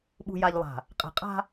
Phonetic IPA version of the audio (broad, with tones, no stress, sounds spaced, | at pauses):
ɓ ṳ˨ j a˨ ʎ lˠ a̤˨ | qʼ ɛ̤˨ qʼ a̤˦